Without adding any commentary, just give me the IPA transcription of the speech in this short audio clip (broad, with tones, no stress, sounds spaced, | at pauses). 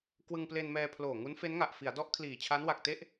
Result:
k w ɯ˧ ŋ p l e˧ n m ɛː˧ pʰ l oː˨˩ ŋ u˦˥ n f e˦˥ n ŋ a˨˩ ʔ f i˩˦ a̯ d ɔ˦˥ ʔ kʰ l iː˨˩ t͡ɕʰ a˦˥ n w a˨˩ k̚ t e˥˩ ʔ